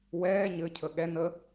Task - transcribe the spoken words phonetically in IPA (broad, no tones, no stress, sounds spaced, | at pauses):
w ɛː ɲ ɘ cʰ ə ɠ ɛ n ə